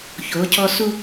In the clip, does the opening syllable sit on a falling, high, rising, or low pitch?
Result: rising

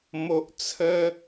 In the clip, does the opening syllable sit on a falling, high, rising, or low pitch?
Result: high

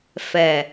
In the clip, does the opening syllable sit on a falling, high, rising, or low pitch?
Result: low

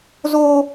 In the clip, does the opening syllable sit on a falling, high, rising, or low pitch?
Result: high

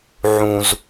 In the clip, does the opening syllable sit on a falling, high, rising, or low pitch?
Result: low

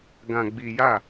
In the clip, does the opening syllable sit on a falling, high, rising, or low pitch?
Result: low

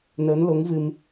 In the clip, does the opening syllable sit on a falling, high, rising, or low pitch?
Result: rising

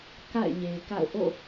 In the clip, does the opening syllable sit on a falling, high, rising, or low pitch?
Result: falling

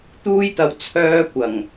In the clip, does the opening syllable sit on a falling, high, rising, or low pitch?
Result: high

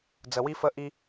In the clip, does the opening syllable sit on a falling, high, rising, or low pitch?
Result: low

